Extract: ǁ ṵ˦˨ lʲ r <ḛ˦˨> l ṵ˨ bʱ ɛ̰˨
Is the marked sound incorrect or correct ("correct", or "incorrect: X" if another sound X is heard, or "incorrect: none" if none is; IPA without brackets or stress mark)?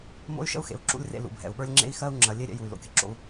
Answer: correct